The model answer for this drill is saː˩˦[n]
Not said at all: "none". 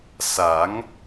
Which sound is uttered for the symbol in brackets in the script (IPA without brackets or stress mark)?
ŋ